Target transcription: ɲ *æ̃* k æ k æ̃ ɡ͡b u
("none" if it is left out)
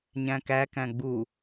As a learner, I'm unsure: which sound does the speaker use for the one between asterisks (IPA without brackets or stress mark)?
æ̃